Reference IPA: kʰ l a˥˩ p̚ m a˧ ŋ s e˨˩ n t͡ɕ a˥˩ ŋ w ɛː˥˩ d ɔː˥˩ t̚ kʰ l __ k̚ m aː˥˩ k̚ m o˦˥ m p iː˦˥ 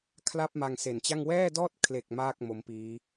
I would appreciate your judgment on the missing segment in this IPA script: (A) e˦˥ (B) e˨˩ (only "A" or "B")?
B